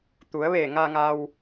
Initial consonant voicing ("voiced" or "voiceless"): voiceless